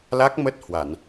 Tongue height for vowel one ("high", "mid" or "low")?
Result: low